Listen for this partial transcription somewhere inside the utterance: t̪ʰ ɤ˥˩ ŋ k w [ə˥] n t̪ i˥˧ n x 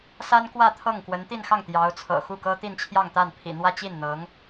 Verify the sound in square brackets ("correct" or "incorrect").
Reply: incorrect